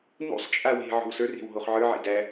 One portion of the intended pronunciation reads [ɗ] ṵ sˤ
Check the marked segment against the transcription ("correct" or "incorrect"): incorrect